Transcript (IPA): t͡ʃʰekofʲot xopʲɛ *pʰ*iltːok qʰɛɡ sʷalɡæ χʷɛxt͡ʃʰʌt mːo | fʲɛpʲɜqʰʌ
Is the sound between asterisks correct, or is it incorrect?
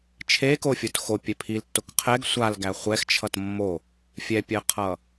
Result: correct